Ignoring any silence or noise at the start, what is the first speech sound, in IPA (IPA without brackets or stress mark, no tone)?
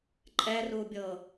ǃʼ